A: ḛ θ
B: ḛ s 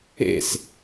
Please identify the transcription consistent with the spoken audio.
B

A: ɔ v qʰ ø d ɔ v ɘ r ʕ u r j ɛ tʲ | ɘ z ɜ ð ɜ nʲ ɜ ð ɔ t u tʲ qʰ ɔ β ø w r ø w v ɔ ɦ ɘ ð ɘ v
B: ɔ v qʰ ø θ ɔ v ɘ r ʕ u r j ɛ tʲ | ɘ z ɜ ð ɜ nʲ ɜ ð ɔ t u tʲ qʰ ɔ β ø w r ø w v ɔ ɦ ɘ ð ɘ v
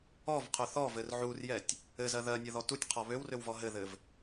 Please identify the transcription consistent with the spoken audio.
B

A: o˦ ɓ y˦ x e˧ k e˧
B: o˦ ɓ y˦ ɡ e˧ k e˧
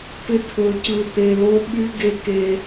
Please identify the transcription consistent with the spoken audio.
B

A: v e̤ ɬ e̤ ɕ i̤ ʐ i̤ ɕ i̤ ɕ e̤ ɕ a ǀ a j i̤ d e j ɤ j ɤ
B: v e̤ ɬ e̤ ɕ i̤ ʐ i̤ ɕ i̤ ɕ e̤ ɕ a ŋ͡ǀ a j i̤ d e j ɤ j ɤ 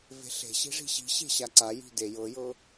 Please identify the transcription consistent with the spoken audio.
A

